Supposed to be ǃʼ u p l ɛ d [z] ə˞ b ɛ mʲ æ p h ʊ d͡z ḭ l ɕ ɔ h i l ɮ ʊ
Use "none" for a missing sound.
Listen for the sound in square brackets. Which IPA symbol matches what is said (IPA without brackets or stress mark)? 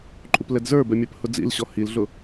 z